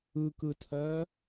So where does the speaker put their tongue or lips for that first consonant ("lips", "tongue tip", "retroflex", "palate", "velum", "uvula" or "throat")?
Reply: velum